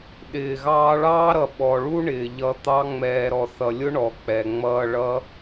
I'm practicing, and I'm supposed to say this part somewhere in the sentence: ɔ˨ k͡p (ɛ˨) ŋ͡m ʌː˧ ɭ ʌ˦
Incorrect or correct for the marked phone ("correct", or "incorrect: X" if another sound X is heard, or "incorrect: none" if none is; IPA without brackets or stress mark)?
correct